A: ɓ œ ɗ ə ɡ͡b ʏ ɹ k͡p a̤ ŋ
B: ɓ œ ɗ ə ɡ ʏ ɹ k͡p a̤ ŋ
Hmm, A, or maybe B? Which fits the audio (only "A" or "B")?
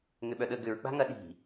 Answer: B